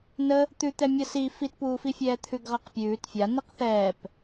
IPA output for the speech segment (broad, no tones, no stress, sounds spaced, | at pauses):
n ə | t̪ ʉ t̪ ɛ mʲ ʌ s i f i t p uː f i fʲ ɛː t̪ʰ ʉ ɡ ʁ a q pʲ ʉː t fʲ a n i q θ ɛː p